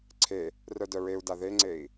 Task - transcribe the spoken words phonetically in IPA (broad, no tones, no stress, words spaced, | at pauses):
ǀʰe | rœdœɹeu̯da ðeŋ͡ǀei̯